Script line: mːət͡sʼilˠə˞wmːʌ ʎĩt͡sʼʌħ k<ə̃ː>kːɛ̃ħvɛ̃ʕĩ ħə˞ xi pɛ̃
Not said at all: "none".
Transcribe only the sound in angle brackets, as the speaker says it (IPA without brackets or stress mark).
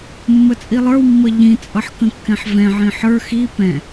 ə̃